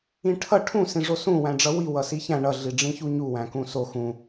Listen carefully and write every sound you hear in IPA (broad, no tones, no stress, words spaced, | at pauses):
ĩʈʰʌ ʈʰũ sĩʐosũ wæ̃ɖ͡ʐʌwi wʌsiçæ̃ ɳʌ ɮiɖ͡ʐĩçuɲu wæ̃kũso xũ